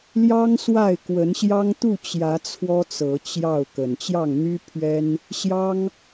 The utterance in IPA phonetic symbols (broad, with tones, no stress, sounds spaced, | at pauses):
l j ɑ˦ ŋ s w a˥˨ ɪ̯ k w ə˨˦ n ɕ j ɑ˦ ŋ t̪ u˥˨ t͡ɕ j ä˨˦ t͡sʰ w ɔ˦ t͡s ɤ˨˦ t͡ɕ j ɑ˥˨ ʊ̯ k ə˨˩ n t͡ɕ j ɑ˥˨ ŋ n̪ y˦ pʰ ɥ ɛ˦ n | ɕ j ɑ˦ ŋ